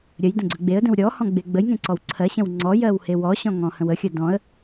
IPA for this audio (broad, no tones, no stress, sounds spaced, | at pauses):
ɾʲ ə j d ə̃ ɡ͡ǀ ə ɡ͡b e ə̯ d ə̃ w ɾʲ ɔ h ɔ̃ ɡ͡b e ɡ͡b ə j ŋ ẽ ǀ ɔ w ǀʰ ɜ ɕ ə̃ w ŋ͡ǀ ɔ j ɜ w h e w ɔ ɕ ɔ̃ ŋ ɔ̃ h ə̃ w ə xʲ ə d ɔ̃ ə̯